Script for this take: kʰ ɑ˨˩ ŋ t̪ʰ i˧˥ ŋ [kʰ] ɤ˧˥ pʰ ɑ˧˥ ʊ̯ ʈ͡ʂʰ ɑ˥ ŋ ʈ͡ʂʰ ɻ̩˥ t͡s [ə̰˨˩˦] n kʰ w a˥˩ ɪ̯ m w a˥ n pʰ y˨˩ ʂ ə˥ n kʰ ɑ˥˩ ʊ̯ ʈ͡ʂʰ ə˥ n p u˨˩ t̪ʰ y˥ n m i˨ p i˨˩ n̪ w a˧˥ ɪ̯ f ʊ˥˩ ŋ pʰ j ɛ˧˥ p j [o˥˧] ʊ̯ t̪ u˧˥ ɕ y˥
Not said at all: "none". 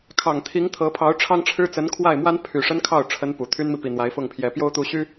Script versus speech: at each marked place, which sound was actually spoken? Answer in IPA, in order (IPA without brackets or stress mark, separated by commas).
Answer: t̪ʰ, ə˧˥, o˥